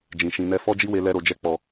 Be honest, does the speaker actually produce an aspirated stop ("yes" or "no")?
no